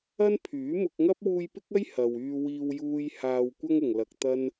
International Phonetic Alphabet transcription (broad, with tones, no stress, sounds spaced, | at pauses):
ɐ˥ n pʰ yː˨˥ m ʊ˧ k̚ ŋ ɐ˥ p̚ w uː˧ j p ɪ˥ k̚ ɐ˥ j h ɐ˨ w yː˧ w iː˧ w j uː˥ j h aː˧ w kʷ ɐ˥ ŋ ʊ˨ ŋ l ɐ˧ k̚ t̪ ɐ˥ n